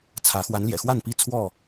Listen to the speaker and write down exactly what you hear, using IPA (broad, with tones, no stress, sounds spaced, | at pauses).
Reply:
t͡sʰ ä˨˦ x w a˨˦ n l j ɛ̰˨˩ x w a˥˨ n p i˥˨ t͡sʰ w ɔ˥˨